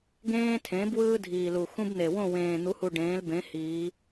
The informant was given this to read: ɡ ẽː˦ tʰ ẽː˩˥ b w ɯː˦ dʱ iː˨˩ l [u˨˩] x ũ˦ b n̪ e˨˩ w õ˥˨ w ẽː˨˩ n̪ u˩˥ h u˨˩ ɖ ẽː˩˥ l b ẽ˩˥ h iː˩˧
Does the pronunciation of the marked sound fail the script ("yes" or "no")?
no